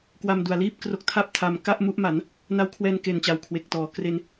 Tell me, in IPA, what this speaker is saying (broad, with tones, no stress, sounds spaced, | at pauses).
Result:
k w a˧ m d u˨˩ a̯ l iː˥˩ p̚ k r o˦˥ k̚ tʰ a˥˩ p̚ tʰ a˧ m k a˥˩ ʔ m u˦˥ ʔ m a˩˦ n | n a˦˥ w kʰ w ɛː˧ n k e˨˩ n t͡ɕ a˨˩ w kʰ w e˨˩ k̚ t ɔː˩˦ k r e˧ n